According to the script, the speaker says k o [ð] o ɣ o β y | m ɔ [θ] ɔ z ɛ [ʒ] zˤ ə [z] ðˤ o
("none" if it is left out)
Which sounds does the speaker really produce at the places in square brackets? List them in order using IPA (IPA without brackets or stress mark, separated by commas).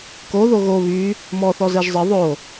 ð, θ, ʒ, none